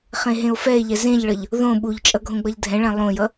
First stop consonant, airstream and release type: implosive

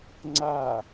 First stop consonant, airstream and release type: click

